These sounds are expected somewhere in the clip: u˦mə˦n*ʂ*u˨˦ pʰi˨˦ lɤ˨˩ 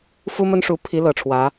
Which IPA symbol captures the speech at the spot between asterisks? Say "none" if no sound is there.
ʂ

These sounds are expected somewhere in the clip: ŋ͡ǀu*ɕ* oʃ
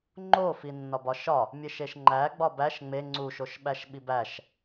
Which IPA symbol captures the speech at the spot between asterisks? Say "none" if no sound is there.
ʃ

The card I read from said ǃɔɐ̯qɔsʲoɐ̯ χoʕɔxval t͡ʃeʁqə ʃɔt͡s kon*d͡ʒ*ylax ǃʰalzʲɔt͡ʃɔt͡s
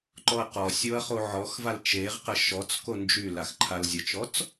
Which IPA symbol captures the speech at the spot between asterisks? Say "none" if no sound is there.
d͡ʒ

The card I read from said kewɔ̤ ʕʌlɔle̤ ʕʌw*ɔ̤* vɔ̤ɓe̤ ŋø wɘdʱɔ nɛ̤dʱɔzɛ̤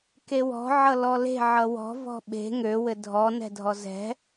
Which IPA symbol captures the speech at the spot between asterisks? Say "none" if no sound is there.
ɔ̤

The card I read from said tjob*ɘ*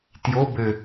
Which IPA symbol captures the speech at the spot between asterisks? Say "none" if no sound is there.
ɘ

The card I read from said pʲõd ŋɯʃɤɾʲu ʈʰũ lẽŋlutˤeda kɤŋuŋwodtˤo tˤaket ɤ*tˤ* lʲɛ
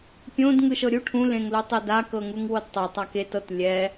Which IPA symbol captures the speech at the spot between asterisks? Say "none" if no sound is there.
t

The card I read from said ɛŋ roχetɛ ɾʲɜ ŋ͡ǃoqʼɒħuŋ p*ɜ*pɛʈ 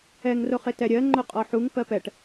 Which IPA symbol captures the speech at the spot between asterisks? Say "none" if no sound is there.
ɜ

